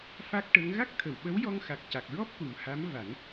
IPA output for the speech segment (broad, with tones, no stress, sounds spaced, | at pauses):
f a˦˥ k̚ ʈ ə˧˥ ŋ ɣ a˦˥ k̚ t̪ʰ ə˨˩˨ w ɓ ə˧˥ w j ɔ˧ ŋ x a˨˩ k̚ c a˨˩ k̚ ɹ ɔ˦˥ p̚ k u˨˩ m h a˧˥ m v a˨˩˦ n